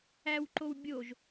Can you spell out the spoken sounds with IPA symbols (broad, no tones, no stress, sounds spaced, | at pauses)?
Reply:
æ w ǃ o w bʲ o ʒ